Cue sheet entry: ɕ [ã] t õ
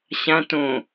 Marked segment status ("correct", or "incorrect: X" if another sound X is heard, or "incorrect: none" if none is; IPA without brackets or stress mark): correct